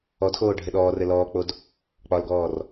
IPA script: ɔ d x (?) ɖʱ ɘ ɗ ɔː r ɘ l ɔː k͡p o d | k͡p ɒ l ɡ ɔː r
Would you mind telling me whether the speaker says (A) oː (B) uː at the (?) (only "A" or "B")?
A